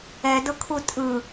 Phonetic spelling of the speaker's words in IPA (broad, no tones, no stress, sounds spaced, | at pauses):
ɛ d ɤ kʰ u tʼ ɯ